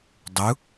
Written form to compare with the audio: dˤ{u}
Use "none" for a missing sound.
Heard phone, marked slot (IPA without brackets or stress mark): u